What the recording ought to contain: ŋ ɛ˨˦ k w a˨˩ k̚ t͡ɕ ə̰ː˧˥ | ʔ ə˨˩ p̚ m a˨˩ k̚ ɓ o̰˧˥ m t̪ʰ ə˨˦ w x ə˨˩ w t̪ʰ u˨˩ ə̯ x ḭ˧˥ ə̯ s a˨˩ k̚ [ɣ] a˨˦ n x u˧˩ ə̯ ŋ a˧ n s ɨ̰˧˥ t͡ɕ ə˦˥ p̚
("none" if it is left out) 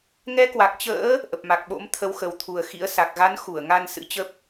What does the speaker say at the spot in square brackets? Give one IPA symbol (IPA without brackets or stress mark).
ɣ